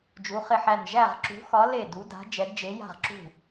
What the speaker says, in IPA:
d͡ʒ u˩˧ χ ɪ˧˩ ħ æ˧˩ n ʒ æ˧˩ ʁ ǁ ṳ˩˧ x ɒ˩˧ l e˧˩ d u˩˧ d a̤˩˧ d͡ʒ ɛ˩˧ d d͡ʒ e˩˧ j a̤˧˩ ʁ ǁ ṳ˧˩

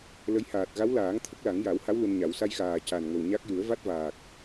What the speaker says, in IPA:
l ə˧˥ j h aː˨˩ t̚ ɣ a˧˥ w l aː˨˩˦ ŋ t̪ʰ ə˦˥ k̚ l a˨˩˦ ŋ j a˨˩˦ w h a˧˥ w l u˧ n ɲ a˨˩˦ w s a˧ j x aː˨˩ c a˨˩ n ŋ ə˨˩ w ɲ a˦˥ k̚ j u˨˩˦ ə̯ v a˦˥ t̚ v aː˨˩ k̚

